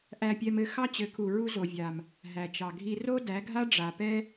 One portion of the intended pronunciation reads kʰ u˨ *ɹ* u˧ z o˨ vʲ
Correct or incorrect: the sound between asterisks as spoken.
correct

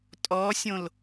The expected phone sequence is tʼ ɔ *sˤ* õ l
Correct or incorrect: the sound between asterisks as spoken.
incorrect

